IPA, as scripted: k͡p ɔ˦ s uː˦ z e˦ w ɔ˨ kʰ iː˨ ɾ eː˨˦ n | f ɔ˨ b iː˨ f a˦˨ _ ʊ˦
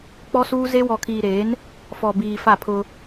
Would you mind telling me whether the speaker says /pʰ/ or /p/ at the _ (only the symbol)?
pʰ